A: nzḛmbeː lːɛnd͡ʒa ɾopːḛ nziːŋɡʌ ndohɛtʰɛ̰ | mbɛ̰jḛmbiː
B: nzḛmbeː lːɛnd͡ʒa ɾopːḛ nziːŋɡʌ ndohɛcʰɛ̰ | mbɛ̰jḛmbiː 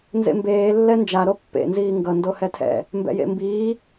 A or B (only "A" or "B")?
A